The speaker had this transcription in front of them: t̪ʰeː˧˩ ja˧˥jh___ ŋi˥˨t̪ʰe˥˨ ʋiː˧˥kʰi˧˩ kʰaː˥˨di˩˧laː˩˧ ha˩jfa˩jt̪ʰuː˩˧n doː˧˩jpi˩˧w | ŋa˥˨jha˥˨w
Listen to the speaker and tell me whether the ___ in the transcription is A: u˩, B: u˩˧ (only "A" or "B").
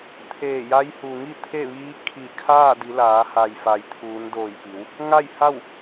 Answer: A